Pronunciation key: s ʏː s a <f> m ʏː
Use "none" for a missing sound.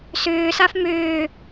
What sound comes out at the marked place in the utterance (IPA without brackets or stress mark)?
f